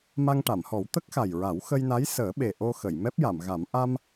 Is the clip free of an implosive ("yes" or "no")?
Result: no